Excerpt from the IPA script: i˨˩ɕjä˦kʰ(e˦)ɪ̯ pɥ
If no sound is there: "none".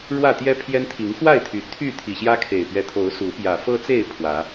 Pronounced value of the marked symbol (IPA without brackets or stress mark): e˨˩